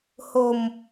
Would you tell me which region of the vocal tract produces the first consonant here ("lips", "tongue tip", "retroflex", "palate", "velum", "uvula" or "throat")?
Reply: throat